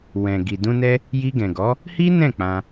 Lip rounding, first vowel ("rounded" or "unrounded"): unrounded